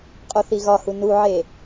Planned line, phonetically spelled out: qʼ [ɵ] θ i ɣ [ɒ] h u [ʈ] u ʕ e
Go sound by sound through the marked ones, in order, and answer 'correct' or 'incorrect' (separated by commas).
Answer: incorrect, correct, incorrect